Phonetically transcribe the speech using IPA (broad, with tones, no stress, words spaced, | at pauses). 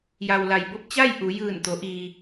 ja˩wla˩jbo˧p̚ t͡ɕa˥˨j ʔu˩˧ jɯː˧˩nt̪o˩˧ʔiː˩